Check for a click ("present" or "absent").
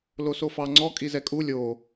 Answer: present